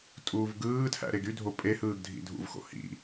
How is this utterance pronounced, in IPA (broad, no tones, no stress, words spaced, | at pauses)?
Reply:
tʼuːvɡɯːtʰæ̰ ɾeɡydʱo pʼe hɯːɡdʱḭdʱṵvxo̰ hḭ